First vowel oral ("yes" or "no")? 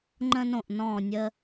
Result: no